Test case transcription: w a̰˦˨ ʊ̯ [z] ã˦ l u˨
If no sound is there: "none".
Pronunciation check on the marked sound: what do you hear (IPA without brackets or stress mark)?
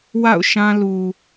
ʃ